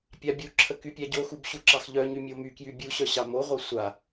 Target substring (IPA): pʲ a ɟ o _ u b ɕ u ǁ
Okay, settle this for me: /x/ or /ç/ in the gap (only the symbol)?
x